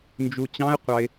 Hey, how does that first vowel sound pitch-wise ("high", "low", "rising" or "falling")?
low